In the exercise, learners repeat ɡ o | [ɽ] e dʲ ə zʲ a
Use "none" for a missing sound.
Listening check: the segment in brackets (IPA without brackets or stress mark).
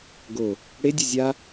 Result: ɽ